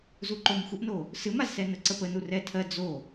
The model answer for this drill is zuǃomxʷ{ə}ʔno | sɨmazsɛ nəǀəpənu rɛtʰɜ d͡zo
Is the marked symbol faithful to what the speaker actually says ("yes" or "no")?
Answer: yes